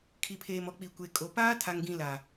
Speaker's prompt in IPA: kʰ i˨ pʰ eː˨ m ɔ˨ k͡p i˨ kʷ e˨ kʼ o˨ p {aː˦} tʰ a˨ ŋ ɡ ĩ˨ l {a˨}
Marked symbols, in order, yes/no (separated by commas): yes, yes